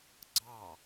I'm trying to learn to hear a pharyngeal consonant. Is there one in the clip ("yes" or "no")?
no